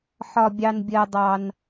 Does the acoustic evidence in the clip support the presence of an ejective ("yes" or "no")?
no